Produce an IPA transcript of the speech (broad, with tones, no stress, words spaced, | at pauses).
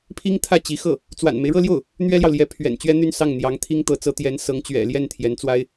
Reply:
pʰi˥ŋt̪ʰä˥˩ t͡ɕi˧˥xɤ˥˩ | t͡swa̰˨˩nme˦ɪ̯ɻɤ˥˧ljo˥˩ʊ̯ | n̪ɥɛ˥ljɑ˨ʊ̯ljɛ˧˥ pʰɥɛ̰˨˩nt͡ɕɥɛ˥n̪y˥˧n sɑ˥˩ŋn̪jɑ˧˥ŋt̪ʰi˥ŋ t̪ɤ˧˥t͡sɤ˧˥t̪jɛ˧˥n sɤ˧˥ŋ t͡ɕɥɛ̰˨˩ljɛ˥˩n t̪ʰjɛ˧˥nt͡swa˥ɪ̯